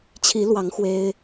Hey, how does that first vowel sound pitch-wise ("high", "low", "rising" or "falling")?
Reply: rising